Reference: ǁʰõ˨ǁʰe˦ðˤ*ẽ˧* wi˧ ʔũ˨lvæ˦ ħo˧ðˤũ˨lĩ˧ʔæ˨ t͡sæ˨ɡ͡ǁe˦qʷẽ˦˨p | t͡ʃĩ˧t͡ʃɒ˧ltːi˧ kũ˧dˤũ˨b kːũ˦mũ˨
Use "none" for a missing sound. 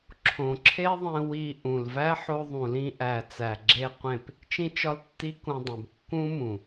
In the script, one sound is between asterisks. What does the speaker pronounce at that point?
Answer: ẽ˧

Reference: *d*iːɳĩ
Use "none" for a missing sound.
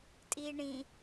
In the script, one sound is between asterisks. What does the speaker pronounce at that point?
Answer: tʼ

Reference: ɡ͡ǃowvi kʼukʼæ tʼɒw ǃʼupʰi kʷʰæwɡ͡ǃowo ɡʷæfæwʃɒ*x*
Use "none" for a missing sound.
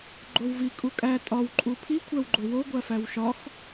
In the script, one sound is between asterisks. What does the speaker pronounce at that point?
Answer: x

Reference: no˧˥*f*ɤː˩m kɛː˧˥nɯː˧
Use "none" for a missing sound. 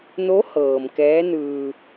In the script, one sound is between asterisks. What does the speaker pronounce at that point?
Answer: h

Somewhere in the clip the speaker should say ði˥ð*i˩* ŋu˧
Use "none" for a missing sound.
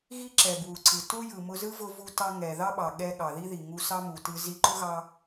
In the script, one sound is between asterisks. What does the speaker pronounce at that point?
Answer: i˩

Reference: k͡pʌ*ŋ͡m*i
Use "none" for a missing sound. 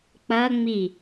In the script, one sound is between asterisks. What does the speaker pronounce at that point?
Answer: ŋ͡m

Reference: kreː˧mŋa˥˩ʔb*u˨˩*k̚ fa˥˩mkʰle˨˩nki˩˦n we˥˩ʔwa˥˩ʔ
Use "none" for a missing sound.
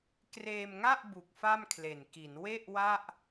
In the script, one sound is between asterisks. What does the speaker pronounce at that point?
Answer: u˨˩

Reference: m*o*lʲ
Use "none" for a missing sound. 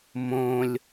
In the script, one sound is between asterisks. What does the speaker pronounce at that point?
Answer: õ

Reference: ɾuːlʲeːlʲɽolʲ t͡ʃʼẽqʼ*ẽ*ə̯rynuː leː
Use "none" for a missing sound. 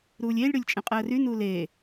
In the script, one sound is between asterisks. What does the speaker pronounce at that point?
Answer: e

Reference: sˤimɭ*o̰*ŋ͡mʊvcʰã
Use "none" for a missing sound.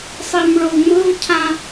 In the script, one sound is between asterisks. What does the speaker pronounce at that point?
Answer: o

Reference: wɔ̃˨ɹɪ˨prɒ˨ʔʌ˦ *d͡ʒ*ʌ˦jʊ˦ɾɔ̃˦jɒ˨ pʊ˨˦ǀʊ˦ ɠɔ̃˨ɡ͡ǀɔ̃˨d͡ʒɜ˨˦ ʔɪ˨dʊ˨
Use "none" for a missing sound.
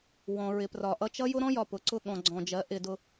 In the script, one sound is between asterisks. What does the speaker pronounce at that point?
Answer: t͡ʃ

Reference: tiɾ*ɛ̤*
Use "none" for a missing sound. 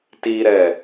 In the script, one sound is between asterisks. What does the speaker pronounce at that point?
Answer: ɛ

